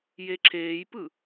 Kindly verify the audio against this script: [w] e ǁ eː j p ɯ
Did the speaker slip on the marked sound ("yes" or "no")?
yes